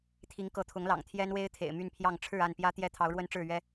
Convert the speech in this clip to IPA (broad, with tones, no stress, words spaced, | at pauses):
t̪ʰi˨˦ŋkɤ˨˦t̪ʰʊ˨˦ŋlɑ̰˨˩ŋ t̪ʰjɛ˦nwe˦ɪ̯ t̪ʰḛ˨˩ɪ̯ my˥˨npʰjɑ˥˨ŋ ʈ͡ʂʰɻ̩˥˨a˥˨npjä˦ t̪jɛ˦t̪ʰɑ˨˦ʊ̯ɻwə˦nʈ͡ʂɻ̩˥˨ ɥɛ˦